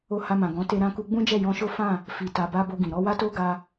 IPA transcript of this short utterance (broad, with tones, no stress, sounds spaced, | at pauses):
o˧ h a˧ m ã˨ ɡ ɔ̃˨˦ t e˧ ɾ ã˧ k u˧ ɡ͡b ũ˦ d͡ʒ ɛ˦˨ j ɔ̃˧ ʃ o˦ f ã˦˨ | f i˨ t a˨ b a˧ b o˧ ɡ ĩ˨ ɾ ɔ˧ w a˦ t o˦ ɡ a˧